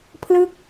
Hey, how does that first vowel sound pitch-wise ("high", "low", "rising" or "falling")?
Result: falling